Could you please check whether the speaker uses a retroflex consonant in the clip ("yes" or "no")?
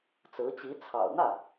no